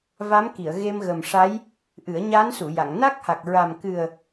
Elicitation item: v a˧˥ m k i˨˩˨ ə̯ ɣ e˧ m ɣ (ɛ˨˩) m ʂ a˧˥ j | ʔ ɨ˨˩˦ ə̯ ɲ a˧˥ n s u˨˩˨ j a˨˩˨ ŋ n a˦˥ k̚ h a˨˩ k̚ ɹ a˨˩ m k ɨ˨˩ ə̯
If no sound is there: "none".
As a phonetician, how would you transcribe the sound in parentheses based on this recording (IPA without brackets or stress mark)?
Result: ə˨˩